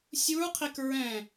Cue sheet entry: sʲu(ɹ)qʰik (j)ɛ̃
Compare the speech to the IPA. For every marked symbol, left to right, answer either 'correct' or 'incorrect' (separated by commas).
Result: correct, incorrect